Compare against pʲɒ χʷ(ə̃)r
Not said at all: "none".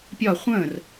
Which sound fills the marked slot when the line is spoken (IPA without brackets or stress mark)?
ə̃